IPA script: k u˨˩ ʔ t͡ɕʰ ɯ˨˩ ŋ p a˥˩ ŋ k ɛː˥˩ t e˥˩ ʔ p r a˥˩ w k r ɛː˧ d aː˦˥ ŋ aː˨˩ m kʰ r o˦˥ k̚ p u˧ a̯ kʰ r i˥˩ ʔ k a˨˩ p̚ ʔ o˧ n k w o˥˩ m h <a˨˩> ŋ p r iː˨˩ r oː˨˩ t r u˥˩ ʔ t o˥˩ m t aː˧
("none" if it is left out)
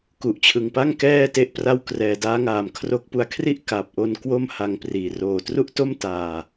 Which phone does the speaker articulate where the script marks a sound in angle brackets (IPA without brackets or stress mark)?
a˧